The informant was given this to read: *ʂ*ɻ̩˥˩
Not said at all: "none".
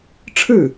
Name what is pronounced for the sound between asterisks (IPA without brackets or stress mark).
ʈ͡ʂʰ